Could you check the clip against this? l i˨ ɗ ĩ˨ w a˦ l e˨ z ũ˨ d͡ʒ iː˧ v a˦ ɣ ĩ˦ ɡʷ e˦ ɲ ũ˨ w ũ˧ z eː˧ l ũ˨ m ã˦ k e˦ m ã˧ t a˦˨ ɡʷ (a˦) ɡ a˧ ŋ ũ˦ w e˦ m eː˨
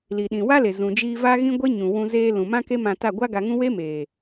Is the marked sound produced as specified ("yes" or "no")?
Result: yes